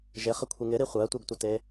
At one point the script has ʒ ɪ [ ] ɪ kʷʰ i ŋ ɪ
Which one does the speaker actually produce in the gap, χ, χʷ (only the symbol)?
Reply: χ